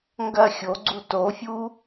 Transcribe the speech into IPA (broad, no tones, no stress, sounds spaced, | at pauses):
ŋ ɡ ɐ xʲ o ɡ͡ǀ u t o fʲ u